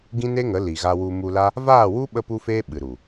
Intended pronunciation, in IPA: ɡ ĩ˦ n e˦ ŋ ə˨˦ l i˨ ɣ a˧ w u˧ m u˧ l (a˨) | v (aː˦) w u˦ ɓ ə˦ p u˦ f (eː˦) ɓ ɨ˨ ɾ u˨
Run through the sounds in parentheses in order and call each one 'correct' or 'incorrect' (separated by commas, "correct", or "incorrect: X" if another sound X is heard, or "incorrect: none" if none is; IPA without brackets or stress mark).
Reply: incorrect: a˦, incorrect: aː˦˨, correct